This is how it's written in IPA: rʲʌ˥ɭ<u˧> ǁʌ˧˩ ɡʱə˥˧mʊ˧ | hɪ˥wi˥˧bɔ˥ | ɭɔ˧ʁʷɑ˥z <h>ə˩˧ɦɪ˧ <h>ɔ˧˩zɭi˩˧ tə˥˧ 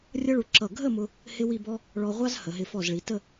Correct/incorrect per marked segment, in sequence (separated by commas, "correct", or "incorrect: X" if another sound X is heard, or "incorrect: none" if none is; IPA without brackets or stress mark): correct, correct, incorrect: f